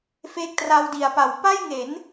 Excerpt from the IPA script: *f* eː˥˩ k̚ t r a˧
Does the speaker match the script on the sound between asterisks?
yes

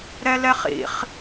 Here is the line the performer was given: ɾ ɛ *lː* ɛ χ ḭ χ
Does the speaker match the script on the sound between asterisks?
no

